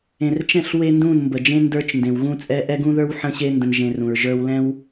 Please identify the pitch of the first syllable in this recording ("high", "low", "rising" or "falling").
low